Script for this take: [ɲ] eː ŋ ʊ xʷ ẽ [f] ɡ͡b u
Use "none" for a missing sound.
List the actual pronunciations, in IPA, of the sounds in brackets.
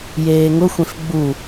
j, f

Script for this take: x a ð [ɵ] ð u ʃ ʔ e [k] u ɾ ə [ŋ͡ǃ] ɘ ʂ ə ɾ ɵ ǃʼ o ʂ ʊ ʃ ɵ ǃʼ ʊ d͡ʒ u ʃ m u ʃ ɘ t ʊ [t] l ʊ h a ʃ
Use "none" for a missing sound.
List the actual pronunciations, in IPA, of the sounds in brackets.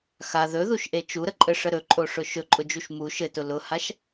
ɵ, t͡ʃ, ǃʼ, none

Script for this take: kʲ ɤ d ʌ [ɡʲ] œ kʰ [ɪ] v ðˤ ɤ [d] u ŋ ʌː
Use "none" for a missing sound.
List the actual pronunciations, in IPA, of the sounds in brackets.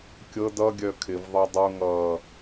ɡʲ, ɪ, dˤ

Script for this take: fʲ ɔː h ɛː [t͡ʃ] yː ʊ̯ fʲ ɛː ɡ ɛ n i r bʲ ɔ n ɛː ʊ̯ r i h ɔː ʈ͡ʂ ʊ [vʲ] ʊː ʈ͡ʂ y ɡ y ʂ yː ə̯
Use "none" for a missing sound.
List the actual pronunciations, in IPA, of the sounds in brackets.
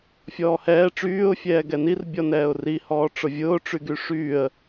ʈ͡ʂ, vʲ

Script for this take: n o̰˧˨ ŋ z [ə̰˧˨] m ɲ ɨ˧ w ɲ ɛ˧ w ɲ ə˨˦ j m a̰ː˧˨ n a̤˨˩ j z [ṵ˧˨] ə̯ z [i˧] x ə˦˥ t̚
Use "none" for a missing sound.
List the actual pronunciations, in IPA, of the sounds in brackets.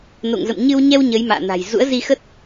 ə̰˧˨, ṵ˧˥, i˧

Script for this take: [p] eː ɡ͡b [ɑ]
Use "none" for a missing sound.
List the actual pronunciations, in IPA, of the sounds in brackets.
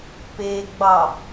p, ɑ

